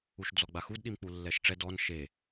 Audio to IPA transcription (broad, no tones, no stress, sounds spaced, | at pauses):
u ʃ d͡z ɔ ɡ͡b a x u d ɗ i m k͡p u lː ɛ ʃ ʈ͡ʂ ɛ d ɔ n ʃ e